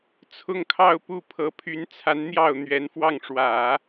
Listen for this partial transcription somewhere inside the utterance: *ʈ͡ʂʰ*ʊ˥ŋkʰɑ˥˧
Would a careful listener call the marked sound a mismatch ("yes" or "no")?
yes